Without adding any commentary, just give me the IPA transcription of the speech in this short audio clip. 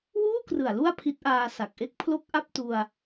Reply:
w uː˥˩ k r ɯ˨˩ a̯ l u˥˩ a̯ pʰ i˦˥ t̚ ʔ aː˧ s a˨˩ k̚ ʔ e˥˩ k̚ pʰ l o˥˩ k̚ ʔ a˥˩ p̚ t u˧ a̯

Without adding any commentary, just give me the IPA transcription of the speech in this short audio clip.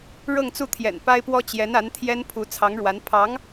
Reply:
ɻ ɤ˥˧ ŋ t͡s u˥˩ t̪ʰ j ɛ̰˨˩ n p a˥ ɪ̯ p w ɔ˥ t͡ɕ j ɛ˧˥ n a˧˥ n t̪ʰ j ɛ˥ n pʰ u˧˥ t͡sʰ ɑ˧˥ ŋ ɻ w a˧˥ n pʰ ɑ˧˥ ŋ

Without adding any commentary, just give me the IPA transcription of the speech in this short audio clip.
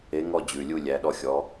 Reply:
e˨˦ ŋ ɔ˦˨ d͡ʑ ʉ˩˧˩ lʲ u˦˨ lʲ æ˨˦ ɗ ɔ˦ xʲ ɔ˨˦

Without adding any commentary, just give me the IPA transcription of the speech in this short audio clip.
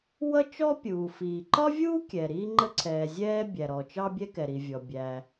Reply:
w ʌ˥ t͡ʃ ɔ˥ pʲ uː˩ f iː˩ ǃ ɒ˥ vʲ uː˥ kʲ ɛ˩ ɾ iː˥ ŋ͡ǃ ə˥ ǀʰ ɛː˩ zʲ ɛː˥ bʲ æ˩ ɾ ɔ˩ t͡ʃ ɑ˥ bʲ ɛ˥ k ɛ˩ ɾ i˩ vʲ ɔ˩ bʲ æ˩

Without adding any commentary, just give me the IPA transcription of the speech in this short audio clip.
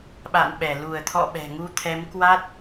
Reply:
ɓ a̰˧˨ n ɓ ɛ˧˩ l u˧˩ ə̯ t̪ʰ ɔ̰˧˨ ɓ ɛ̤˨˩ ŋ u˧ t̪ʰ ɛ˨˦ m k w a˦˥ t̚

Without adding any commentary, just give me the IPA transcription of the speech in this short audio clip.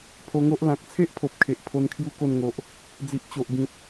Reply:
pʰ o˧ ŋ o˦ ʔ l ã˨ k̚ t͡sʰ e˦ ʔ pʰ o˨ p̚ kʰ e˨ ʔ pʰ o˧ n kʰ j u˥˧ k o˥˧ n ŋ o˨ ʔ | d͡z i˨ ʔ t͡ɕ o˨ ʔ ɡ ĩ˨ t̚

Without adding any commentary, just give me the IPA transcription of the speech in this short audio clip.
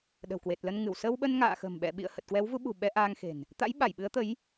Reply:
ɗ ə̤˨˩ w k w e˨˩ t̚ l ə˧ n ŋ ɨ˧˩ w s ə˧ w ɓ ə˧ n ŋ a̰ː˧˨ x ə̤˨˩ m ɓ ɛ̰˧˨ ɓ ḭ˧˨ ə̯ h ə˨˩ t̚ k w ɛ˨˦ w v u˨˦ ɓ ṳ˨˩ ɓ ɛ˧ ʔ aː˧ ŋ x e̤˨˩ n | t̪ a̰˧˥ j ɓ a˧˩ j ɓ ɨ˨˦ ə̯ t̪ ə˨˦ j

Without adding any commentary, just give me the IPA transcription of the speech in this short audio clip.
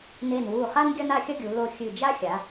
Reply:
n e˧˩ n w u˧˩ χ a˥ n ɡʲ ɐ˥ n a˥˧ xʲ ɐ˥ ɡʲ u˩˧ l o˧˩ xʲ ɨ˧˩ d͡ʒ a˥ xʲ a˩˧

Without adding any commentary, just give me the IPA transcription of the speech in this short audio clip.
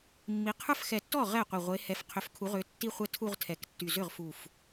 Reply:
mː i˨˦ qʰ ə˞˥˧ f x ɛ˧˩ tː ɔ˥˩ ʁ ɛ˥˩ qʷ i˧˩ ʁʷ e˨˦ h ɛ˨˦ f qʰ ʏ˨˦ f kʰ u˨˦ ʁ ʏ˨˦ tː i˥˧ χʷ ɛ˥˩ tʰ u˥˧ ʁ tʰ ɛ˨˦ k tː y˧˩ z ʏ˥˩ ʁ f u˧˩ f

